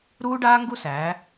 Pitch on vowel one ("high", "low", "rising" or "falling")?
high